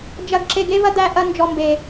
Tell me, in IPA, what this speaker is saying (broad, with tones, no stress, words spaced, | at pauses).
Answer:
d͡ʒɐ˨ɡ ǁe˨ɡe˦vɐ˦ d̪æ˨ ʔɐ˦nd͡ʒɔ˨mbe˨